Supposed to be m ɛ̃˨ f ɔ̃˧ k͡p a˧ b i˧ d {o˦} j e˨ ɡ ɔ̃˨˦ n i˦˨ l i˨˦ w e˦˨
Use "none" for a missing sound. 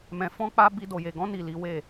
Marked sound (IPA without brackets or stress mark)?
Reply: o˨